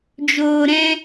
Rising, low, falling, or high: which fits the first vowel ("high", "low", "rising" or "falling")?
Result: low